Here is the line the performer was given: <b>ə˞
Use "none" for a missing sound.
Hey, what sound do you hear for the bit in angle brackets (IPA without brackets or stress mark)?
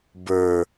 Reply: b